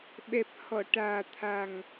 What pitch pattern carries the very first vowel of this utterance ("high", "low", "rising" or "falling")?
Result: low